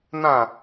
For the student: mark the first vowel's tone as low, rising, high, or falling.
falling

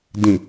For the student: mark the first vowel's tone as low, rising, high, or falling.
low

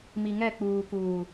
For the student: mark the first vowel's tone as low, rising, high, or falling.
low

